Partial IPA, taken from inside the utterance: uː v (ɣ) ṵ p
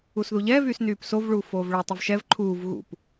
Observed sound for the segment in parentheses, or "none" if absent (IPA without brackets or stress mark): ɣ